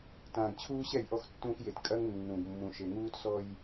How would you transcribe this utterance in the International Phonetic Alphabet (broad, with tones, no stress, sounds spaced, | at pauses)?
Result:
t ãː˨ ɡ t͡ɕʰ uː˦ ɕ ɛ˦˨ j ʔ ɔ˦ x tː ũː˦ x j e˨ t kʼ ɐ˦ ŋ nː ũ˨ ɡ mː ũ˨ ʃ e˨ ŋ uː˦ t s ɔ˦ j